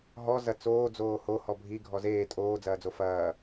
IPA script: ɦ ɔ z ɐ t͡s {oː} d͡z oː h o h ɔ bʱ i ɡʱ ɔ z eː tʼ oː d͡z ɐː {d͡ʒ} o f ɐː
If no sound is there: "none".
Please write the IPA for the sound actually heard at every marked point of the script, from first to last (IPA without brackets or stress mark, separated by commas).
oː, d͡z